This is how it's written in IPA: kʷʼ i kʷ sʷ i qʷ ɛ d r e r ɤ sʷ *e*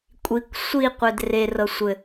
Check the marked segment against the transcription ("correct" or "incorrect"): incorrect